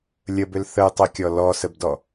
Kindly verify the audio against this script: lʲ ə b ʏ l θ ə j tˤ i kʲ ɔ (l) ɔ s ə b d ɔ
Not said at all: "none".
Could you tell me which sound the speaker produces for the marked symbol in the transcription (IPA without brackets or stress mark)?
l